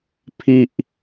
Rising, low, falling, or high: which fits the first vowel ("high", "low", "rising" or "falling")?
low